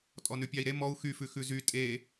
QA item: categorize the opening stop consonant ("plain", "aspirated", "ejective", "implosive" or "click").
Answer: ejective